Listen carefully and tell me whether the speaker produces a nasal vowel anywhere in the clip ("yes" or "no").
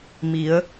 no